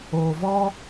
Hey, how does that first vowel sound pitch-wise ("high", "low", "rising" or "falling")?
low